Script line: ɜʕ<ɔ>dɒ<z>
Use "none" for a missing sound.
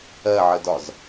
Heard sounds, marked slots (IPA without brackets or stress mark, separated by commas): ə, z